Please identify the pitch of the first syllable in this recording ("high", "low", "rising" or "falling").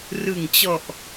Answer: low